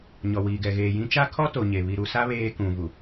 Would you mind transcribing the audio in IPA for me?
ɲɔ˨wiː˨ɡɛ˨ ɣeː˨jĩ˦ t͡ʃa˦kʰɔ˦ to˨ɲe˨ βi˨ɾu˨sa˦ βeː˦kũ˨vu˨

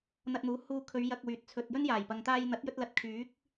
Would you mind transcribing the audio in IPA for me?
n̪ɐ˧t̚n̪uː˨˥ huː˧kʰɵ˨˧ɥ jɐ˧k̚ wyː˨t̚ t͡sʰɵ˨t̚ jɵ˥njaː˨˩jpɐ˨ŋ t̪aː˧jn̪ɐ˨˥t̚jɵ˧t̚lɐ˨t̚ kʰyː˨˥k̚

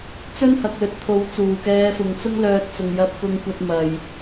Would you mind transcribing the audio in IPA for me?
t͡sɵ˥nhɐ˨k̚lɵ˨˥t̚t̪ʰo˨˥w t͡suː˨˩kɛː˧fʊ˨ŋ t͡sʊ˥ŋlœː˧t̚ t͡sʊ˨ŋ jɐ˧p̚kʊ˧ŋkʷɐ˧t̚ mɐ˨j

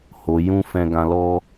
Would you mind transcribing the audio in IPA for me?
ho˨jũ˧ fɛ̃˧ɡã˧lɔ˦

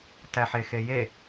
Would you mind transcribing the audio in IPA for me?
tæħexeje

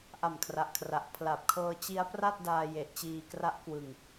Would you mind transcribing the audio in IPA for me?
ʔa˨˩mkʰra˨˩ʔkʰra˨˩ʔ pʰla˨˩p̚kʰɤː˧t͡ɕi˦˥a̯ pra˥˩t̚daː˧je˨˩ʔt͡ɕiː˧ kra˦˥ʔkwɯ˧ŋ

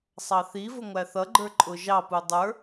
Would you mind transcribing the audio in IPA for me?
sˤɑθivʊ ŋʷæθʌɡ͡ǃə˞ ǃʼʊʒɑpu dˤə˞

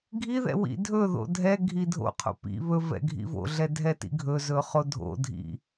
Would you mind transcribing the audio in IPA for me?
ɡʱiðɛ̰ wḭdʱɵðo̰ dʱɛ ɡʱidʱo̰qʰo̰ pḭ βɵ vɛ̰ɡʱḭvo̰ɮɛ dʱɛtḭɡʱɵzɵ χodʱo̰dʱḭ

